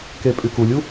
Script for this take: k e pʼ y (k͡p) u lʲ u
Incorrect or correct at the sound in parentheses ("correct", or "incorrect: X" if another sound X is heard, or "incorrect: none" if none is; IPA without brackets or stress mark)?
incorrect: k